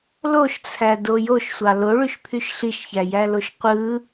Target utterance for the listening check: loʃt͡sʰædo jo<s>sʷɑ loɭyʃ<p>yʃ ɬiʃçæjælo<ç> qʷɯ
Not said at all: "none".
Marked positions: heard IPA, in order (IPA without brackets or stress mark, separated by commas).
ʃ, pʰ, ʃ